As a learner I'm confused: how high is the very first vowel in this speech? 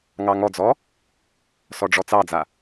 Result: low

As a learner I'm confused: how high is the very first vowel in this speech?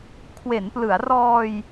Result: mid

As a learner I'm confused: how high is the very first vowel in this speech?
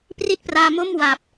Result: high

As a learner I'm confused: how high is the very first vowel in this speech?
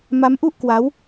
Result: low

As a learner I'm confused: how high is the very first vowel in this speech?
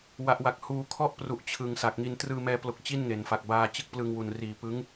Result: low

